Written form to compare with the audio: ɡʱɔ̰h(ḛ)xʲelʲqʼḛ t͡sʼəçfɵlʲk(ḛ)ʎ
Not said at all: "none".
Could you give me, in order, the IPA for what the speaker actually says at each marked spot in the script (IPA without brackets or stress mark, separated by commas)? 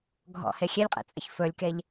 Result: e, e